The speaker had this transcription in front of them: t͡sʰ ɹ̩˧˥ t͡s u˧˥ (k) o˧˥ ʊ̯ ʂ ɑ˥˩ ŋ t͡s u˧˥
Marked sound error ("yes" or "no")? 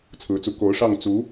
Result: no